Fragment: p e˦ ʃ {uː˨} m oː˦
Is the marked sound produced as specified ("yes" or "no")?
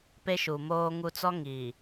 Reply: no